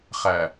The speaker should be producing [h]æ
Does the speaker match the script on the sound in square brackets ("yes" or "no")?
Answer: no